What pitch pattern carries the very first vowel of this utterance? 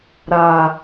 low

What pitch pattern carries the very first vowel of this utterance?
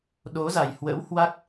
rising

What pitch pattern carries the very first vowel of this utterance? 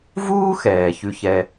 high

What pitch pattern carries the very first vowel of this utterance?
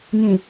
low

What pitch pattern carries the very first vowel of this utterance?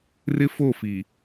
high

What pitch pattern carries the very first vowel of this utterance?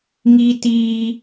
high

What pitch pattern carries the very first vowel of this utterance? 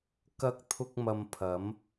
high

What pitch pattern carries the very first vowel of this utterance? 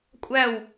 falling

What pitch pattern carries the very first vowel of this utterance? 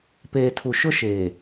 low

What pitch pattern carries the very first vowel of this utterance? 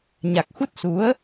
low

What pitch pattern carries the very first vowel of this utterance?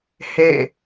falling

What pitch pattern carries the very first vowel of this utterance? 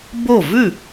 falling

